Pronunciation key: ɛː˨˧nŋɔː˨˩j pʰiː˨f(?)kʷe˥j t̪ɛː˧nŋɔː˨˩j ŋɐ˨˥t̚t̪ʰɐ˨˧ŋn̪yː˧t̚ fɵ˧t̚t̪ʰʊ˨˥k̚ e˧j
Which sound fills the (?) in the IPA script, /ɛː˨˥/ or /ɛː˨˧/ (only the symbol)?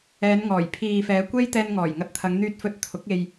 ɛː˨˧